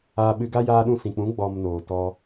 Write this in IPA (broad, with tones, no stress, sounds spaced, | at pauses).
aː˧ ɓ ɨ˧ ɡ a˦ j aː˧ ɗ ũ˧ s ĩ˨ k͡p ũ˨˦ ɡ͡b ɔ˨ m n oː˨ t ɔ˧